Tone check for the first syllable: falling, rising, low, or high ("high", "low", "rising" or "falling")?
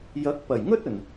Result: rising